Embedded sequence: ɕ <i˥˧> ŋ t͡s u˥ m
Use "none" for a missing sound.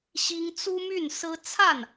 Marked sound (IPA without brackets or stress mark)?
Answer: i˥